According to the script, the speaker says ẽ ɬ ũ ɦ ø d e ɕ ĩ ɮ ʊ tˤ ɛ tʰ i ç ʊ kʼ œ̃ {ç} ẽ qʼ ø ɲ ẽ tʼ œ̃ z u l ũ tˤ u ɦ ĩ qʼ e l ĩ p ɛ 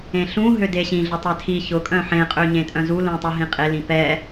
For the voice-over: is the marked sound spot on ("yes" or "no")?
no